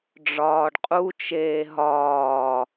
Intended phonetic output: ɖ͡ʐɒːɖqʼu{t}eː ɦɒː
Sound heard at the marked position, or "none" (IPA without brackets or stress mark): t͡ʃ